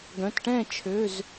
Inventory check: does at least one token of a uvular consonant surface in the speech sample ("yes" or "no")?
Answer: no